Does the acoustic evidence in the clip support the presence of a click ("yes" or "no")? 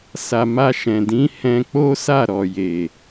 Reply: no